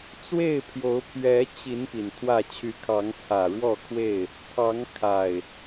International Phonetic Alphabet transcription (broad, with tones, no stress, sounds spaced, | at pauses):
t͡s w e˥˨ ɪ̯ pʰ j o˨˦ ʊ̯ pʰ ɥ ɛ˨˦ t͡ɕ i˨˦ n p i˨˩ n t̪ʰ w ä˥˨ t͡ɕʰ y˨˦ kʰ ɑ˨˦ ŋ t͡sʰ ä˨˩ ɻ w ɔ˥˨ kʰ w e˥˨ ɪ̯ | t̪ʰ ɑ˨˦ ŋ kʰ a˨˩ ɪ̯